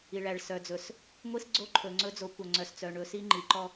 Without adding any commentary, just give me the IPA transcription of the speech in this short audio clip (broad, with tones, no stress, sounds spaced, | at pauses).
i˨ ɭ æ˨ ɭ s œ˨ d͡z ɵ˨ s | ŋʷ i˦ s ɡ͡ǀ o˦ ǃʰ ɵ˨ ŋ͡ǀ ɵ˦ d͡z o˨˦ kʷ œ˨ ŋ͡ǀ œ˨ s t͡s œ˨ ɳ ɵ˨˦ s i˦ ŋ͡ǃ i˨ ǃ ɔ˦